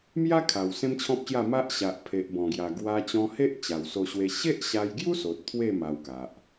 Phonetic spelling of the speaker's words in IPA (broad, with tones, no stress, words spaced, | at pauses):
mja˦kʰa˨˩w sẽ˦mt͡ɕʰɔ̃˦p̚ɕja˥˧ ma˦ʔɕa˨ʔ pʰe˨ʔbɔ̃˨˩ɡja˨˩ ɡwa˧t͡ɕɔ̃˧he˦ʔ t͡ɕa˨˩wso˧ɕwe˧ ɕe˦ʔɕa˧jɡju˦so˨t̚ t̪ʰwe˥˧ ma˧wka˨ʔ